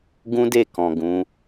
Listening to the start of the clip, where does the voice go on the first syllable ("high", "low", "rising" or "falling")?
high